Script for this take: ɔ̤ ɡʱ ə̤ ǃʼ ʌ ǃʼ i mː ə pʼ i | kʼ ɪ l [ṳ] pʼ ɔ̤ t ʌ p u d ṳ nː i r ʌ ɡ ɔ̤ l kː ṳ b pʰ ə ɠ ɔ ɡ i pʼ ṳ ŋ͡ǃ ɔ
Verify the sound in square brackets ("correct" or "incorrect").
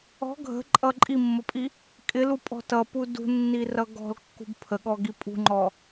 incorrect